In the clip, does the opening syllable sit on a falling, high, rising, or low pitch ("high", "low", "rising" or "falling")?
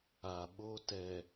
low